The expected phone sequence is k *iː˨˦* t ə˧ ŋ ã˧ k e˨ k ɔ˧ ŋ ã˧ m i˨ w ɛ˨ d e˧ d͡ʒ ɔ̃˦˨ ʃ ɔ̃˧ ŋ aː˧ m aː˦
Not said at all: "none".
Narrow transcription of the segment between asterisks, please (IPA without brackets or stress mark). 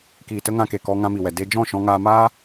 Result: iː˨